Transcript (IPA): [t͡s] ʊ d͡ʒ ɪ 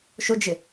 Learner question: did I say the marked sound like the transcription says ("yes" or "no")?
no